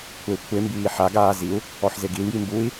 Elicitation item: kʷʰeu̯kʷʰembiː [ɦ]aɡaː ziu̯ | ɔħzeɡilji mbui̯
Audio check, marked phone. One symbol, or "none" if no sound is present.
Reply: ħ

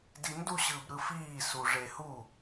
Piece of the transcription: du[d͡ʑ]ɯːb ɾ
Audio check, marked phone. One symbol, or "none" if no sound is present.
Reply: ɕ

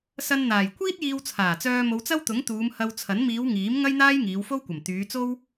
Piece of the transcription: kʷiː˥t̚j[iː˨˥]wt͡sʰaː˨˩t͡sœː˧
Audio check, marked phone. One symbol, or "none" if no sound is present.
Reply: iː˧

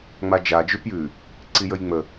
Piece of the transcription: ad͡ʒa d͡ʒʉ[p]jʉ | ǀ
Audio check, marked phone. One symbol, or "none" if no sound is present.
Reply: p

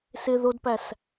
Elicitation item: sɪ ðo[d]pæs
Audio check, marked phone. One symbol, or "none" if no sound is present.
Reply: d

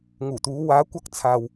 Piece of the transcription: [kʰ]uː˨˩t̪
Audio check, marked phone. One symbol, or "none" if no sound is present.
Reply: ŋ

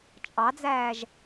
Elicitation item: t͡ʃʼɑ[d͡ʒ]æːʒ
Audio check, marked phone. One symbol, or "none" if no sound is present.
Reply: d͡z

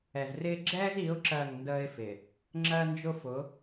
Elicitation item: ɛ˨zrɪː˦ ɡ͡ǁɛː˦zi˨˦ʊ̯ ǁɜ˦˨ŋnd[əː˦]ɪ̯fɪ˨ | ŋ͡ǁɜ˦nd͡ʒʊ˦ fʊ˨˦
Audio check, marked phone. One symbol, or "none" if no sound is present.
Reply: əː˦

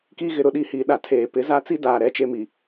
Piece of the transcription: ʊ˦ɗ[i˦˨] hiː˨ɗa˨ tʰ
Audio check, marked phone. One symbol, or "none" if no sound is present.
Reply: i˦˨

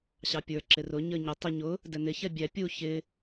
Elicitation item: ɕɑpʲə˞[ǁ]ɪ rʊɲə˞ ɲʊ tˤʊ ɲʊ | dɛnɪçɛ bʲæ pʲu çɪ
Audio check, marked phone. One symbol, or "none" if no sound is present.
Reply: ǁ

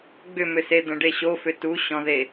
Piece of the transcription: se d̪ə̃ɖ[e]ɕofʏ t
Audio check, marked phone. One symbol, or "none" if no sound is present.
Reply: e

